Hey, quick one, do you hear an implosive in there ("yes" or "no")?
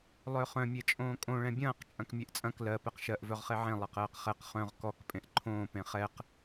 no